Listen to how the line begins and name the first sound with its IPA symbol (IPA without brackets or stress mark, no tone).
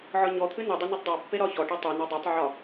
ʕ